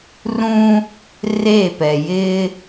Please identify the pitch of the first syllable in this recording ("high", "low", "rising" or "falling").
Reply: high